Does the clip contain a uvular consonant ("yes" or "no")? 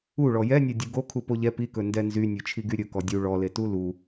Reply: no